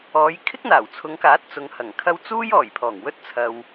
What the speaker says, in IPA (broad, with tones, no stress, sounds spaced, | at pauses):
ɔː˨˧ j kʰ ɪ˥ k̚ n̪ aː˨˩ w t͡sʰ ʊ˨˧ ŋ k aː˨˥ t̚ t͡s ʊ˨ ŋ h ɐ˨˩ ŋ kʰ ɐ˧ w t͡s uː˥ j ɔː˨˩ j pʰ ɔː˨˩ ŋ w ɵ˥ t̚ t͡sʰ ɐ˨ w